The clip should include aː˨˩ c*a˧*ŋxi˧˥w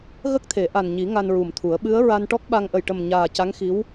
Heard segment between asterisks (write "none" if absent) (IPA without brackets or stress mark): a˧˥